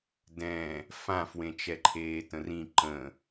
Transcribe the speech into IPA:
dɛ̃ | fãfwẽt͡ʃɛǃʰeː tə̃rĩ ǃə̃

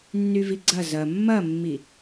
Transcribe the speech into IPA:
nːyviɡ͡ǀɐ zɐ mːɐmːi

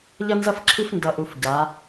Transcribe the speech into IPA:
ʎʌ˦nzʌ˦fǁʰi˦f ndʌ˨ʔu˨f ɟa˨˦

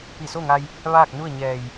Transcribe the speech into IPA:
pi˧˩so˥˨ŋa˧j | ʋaː˥˨k̚nu˥˨ə̯ ɲɛː˧˩j

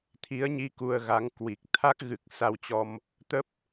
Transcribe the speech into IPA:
t̪ʰi˨˦ə̯ɲi˧ ku˧ə̯ɣa˨˦ŋ kwi˨˩k̚ t̪ʰa˦˥k̚ɣɨ˨˩k̚ sa˧wt͡ɕɔ˧m | t̪ə˦˥p̚

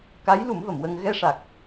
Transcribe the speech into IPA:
ka˧˥jlu˨˩˦m və˨˩˨mwə˧ŋ ɣɛ˧ʂa˨˩k̚

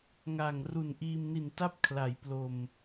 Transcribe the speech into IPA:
ŋa˨˩ŋ ru˨˩nʔiː˧mni˨˩nta˥˩p̚ kʰla˩˦jplo˨˩m

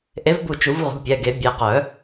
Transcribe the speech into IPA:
ʔe˨˥vbu˧˩ t͡ʃu˨˩˦vʁṳ˩˧˩pʲɛ˩˧˩ɡe˨˩˦ bʲe˩˧˩qœ˨˩˦

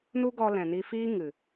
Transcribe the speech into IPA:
nu˦ɡɔ˧ lɛ̃˨ni˧fiː˦ ŋɨ˨

